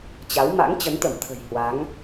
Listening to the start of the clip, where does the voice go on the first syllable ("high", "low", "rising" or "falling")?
rising